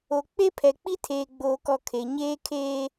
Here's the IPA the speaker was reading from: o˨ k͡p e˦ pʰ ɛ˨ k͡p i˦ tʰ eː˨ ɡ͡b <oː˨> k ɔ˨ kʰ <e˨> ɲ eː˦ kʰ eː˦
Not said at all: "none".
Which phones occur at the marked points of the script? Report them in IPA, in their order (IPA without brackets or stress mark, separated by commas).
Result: oː˨, e˨